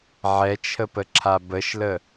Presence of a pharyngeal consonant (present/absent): present